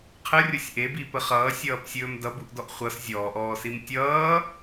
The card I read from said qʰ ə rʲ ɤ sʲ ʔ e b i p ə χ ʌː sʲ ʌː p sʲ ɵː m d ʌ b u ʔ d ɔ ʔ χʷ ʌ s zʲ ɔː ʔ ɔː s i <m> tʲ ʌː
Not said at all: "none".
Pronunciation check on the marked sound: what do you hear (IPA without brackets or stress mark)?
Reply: m